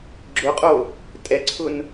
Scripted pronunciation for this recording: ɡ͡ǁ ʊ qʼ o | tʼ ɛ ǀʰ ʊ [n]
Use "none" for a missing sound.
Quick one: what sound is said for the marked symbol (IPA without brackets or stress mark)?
n